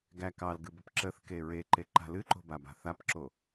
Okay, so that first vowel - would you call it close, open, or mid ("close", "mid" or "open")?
open